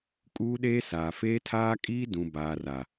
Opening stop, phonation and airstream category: ejective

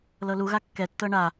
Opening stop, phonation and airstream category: plain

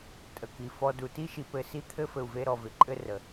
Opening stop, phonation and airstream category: ejective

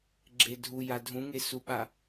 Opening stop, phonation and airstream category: click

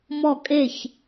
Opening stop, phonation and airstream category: ejective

